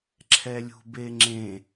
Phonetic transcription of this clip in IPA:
ǁʰ ɛ lʲ ṳ b e ŋ͡ǁ ẽ

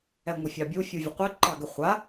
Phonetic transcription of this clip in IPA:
ɛ ŋʷ ə fʲ ɑ bʲ u fʲ u vʲ ə qʷ ɨ ǃ ɑ ɡ ɛ χʷ a

